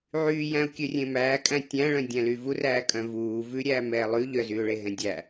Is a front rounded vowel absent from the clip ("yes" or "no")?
no